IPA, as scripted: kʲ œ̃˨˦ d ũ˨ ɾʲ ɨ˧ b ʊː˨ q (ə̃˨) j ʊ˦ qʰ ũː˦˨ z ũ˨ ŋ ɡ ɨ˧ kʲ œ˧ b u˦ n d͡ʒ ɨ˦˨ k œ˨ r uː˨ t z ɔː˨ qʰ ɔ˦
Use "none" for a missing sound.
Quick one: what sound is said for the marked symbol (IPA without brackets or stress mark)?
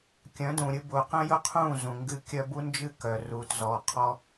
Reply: ə̃˦